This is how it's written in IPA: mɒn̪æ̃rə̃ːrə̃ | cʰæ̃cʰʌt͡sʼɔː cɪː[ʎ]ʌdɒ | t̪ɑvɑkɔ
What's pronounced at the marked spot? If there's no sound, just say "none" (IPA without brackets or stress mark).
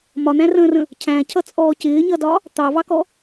ɲ